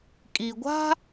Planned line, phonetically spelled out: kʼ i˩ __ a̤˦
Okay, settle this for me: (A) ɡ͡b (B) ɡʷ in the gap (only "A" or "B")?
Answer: B